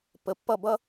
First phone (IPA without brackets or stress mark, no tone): p